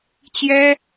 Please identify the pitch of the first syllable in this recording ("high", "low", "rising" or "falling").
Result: high